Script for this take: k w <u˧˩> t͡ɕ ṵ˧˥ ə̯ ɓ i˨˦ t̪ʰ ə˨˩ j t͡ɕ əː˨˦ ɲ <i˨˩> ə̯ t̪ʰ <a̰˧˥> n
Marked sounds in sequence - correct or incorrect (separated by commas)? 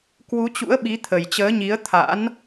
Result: incorrect, incorrect, correct